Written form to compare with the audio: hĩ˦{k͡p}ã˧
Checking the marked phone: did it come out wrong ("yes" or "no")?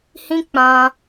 no